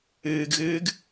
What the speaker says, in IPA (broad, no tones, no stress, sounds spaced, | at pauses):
ɨː ɡ ɣ ɨː ɡ